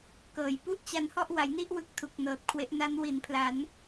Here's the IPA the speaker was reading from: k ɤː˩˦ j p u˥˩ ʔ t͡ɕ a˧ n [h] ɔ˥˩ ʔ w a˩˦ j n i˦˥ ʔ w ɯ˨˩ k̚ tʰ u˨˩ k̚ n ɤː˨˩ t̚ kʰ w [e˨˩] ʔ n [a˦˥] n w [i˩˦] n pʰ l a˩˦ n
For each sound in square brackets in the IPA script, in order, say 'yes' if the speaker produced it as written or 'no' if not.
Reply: yes, no, yes, yes

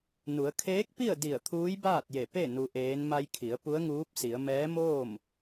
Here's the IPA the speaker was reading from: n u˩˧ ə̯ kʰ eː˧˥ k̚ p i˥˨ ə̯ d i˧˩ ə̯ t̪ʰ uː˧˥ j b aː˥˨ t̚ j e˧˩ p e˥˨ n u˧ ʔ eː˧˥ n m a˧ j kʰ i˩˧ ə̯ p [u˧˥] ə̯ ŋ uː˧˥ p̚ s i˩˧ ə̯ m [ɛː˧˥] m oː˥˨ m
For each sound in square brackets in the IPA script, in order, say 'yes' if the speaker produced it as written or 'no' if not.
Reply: yes, yes

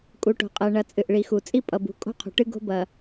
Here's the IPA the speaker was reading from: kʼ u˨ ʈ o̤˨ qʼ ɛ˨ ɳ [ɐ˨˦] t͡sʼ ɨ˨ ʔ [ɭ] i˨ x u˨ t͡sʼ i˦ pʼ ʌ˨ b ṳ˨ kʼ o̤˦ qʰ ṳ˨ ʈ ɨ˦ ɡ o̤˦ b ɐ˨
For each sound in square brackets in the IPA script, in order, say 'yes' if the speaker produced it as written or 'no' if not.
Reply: no, yes

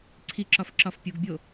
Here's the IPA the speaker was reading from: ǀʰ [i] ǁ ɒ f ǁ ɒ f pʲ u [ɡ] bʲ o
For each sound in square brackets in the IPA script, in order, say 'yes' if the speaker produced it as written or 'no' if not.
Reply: yes, yes

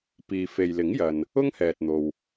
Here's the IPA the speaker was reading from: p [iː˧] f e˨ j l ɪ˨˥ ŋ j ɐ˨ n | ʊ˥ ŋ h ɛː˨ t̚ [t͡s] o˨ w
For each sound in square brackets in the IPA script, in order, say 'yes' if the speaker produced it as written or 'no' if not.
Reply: no, no

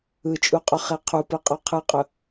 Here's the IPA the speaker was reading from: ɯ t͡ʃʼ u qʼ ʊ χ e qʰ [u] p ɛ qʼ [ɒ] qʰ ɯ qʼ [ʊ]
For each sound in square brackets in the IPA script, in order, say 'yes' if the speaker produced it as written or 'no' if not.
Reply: yes, yes, yes

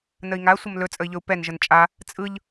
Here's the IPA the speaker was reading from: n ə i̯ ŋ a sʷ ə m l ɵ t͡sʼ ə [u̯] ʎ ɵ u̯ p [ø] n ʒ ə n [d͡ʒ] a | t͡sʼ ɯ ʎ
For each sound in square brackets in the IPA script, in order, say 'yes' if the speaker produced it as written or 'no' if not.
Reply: no, no, no

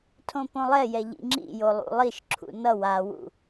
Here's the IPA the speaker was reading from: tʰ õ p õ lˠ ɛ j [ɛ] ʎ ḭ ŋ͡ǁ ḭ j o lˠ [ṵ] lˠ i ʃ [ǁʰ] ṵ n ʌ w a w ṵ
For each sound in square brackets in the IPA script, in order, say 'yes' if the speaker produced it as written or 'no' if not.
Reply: yes, yes, yes

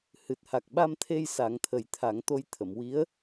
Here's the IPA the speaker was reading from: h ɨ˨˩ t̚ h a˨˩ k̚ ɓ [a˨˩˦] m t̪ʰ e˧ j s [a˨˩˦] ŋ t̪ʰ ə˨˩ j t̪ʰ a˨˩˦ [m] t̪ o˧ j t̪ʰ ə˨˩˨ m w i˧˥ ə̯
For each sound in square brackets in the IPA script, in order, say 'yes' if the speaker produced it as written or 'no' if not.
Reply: no, yes, no

